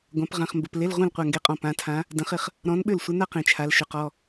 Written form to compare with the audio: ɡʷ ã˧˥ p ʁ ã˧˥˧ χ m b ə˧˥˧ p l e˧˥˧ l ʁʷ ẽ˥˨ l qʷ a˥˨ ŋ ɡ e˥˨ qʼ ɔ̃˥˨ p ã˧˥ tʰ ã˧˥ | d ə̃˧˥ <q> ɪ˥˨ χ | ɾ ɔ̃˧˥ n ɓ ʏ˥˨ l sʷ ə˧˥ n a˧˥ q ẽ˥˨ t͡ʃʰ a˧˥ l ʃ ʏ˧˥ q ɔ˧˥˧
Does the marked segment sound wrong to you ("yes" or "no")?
yes